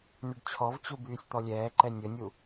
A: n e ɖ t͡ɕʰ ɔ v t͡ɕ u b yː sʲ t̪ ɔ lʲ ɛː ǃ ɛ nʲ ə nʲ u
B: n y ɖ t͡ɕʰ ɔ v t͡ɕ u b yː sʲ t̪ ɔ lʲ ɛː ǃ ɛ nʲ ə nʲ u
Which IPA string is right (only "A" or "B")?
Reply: B